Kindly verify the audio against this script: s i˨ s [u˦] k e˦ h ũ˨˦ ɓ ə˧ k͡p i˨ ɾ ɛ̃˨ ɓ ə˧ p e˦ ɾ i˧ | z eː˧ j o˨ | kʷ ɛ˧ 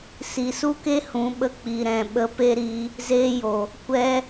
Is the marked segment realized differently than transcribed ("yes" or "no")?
no